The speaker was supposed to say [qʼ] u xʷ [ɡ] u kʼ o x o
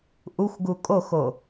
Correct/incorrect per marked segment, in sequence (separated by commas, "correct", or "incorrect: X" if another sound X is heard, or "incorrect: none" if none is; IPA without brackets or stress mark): incorrect: ʔ, correct